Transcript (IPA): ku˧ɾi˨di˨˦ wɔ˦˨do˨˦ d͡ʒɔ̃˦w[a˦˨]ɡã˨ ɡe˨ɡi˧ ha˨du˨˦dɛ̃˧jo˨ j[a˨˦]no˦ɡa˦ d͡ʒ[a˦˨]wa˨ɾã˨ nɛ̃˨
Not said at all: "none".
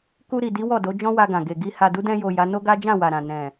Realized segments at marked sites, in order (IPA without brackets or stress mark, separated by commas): a˧, a˨˦, ã˦˨